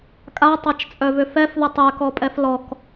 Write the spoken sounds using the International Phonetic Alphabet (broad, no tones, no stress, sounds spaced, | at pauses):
kʼ a tˤ a t͡ʃ t͡sʼ œ v ʏ f ɛ f ð ə tˤ ɛ k ɔ pʼ ɛ f l ɔ k